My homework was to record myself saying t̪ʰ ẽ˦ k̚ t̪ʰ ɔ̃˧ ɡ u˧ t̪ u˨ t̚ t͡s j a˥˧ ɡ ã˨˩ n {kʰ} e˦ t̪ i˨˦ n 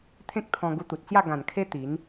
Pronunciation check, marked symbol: correct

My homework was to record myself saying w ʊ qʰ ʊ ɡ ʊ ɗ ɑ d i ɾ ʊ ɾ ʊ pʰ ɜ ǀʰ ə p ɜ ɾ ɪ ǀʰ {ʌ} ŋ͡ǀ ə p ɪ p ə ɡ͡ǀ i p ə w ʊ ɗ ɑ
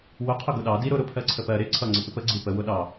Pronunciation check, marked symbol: correct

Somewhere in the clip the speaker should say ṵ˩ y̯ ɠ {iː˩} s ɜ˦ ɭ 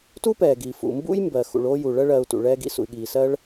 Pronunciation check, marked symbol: correct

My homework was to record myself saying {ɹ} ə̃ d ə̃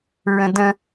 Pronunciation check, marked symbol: correct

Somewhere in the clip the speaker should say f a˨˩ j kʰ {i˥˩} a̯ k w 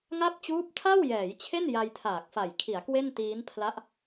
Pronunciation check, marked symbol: incorrect: i˩˦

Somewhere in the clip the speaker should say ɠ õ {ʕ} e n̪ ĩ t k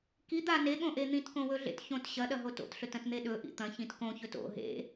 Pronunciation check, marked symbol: incorrect: ʔ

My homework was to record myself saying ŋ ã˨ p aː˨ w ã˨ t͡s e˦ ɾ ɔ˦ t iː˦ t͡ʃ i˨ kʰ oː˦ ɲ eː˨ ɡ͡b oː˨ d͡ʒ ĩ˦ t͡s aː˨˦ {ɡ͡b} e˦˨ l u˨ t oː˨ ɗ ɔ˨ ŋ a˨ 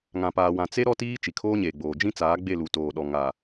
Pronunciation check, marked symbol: correct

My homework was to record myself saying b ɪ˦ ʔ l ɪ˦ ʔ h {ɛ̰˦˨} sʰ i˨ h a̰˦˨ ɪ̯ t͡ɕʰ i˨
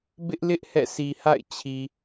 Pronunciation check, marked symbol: correct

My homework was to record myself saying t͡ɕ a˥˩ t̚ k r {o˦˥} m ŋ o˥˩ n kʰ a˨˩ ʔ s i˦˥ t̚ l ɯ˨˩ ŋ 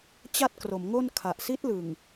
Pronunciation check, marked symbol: incorrect: o˩˦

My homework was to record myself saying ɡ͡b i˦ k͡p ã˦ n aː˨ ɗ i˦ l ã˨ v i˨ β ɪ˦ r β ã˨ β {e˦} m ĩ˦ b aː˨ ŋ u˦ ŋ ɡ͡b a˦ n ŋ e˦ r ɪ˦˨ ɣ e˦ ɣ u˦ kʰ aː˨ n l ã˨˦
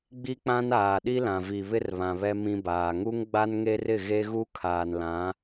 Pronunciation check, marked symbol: incorrect: ɛ˦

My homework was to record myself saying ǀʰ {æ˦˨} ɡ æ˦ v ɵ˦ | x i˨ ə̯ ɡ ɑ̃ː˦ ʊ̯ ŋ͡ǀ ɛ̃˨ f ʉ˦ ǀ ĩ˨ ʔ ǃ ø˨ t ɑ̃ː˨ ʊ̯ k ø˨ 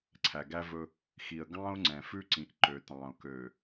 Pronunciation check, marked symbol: incorrect: æ˨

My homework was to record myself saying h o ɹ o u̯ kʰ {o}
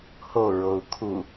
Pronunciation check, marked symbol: incorrect: u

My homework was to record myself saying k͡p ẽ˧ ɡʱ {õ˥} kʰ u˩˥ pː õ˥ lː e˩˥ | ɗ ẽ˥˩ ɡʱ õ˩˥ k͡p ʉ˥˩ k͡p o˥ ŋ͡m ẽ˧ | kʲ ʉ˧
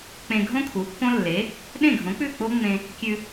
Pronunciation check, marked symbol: correct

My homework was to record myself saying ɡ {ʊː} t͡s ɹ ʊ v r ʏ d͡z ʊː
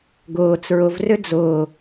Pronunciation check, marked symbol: correct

